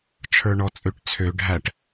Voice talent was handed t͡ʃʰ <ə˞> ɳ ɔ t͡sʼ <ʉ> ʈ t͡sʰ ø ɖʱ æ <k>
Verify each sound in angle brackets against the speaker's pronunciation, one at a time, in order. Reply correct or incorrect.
correct, incorrect, incorrect

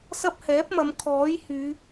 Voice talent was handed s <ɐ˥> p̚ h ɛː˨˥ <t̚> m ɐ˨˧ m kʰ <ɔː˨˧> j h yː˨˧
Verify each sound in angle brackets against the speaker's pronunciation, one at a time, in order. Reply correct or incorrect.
correct, incorrect, incorrect

